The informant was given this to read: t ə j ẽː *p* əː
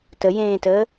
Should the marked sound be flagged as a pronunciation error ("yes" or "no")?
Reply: yes